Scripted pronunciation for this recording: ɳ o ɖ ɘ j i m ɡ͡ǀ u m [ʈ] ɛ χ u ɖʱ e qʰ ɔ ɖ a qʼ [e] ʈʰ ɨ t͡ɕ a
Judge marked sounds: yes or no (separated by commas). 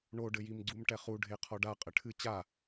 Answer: yes, no